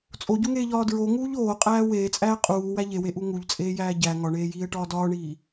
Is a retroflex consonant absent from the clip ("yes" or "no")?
no